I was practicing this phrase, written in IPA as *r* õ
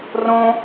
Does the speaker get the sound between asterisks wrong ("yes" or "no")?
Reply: no